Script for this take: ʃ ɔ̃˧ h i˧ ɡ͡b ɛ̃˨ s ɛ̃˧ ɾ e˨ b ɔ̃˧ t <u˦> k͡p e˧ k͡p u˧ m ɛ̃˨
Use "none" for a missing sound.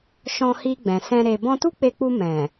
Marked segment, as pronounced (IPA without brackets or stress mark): u˦